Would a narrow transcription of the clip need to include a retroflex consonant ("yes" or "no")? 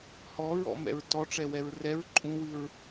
yes